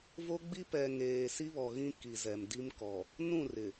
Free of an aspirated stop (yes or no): yes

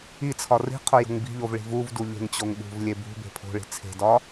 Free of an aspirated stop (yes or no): no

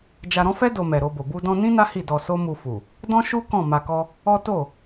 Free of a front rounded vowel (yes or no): yes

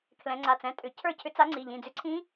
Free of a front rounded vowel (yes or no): no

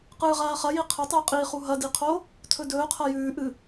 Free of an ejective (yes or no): no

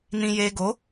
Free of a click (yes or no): yes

